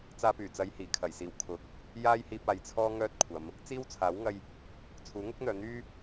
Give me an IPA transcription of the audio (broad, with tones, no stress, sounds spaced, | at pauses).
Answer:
t͡s aː˧ p yː˨˩ t͡s ɐ˨˧ j h iː˨˩ kʰ ɐ˨˩ j s iː˨˩ w kʰ ʊ˨˥ k̚ | j aː˥ j h iː˧ p̚ aː˨ j t͡sʰ ɔː˥ ŋ œː˥ t̚ kʷʰ ɐ˨˧ m | t͡s iː˥ w t͡sʰ aː˨˥ w ŋ ɐ˧ j | t͡sʰ uː˨˥ ŋ ʊ˥ k̚ n̪ œː˨˧ n̪ yː˥